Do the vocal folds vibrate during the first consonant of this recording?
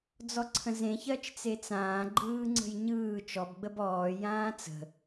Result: yes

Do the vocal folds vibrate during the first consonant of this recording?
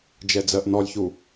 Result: yes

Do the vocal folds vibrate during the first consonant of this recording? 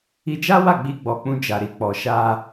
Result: yes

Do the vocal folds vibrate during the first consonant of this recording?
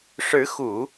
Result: no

